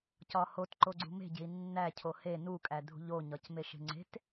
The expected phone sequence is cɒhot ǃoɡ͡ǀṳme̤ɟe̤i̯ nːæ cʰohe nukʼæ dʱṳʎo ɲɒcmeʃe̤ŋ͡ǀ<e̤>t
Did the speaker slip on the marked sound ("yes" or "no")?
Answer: no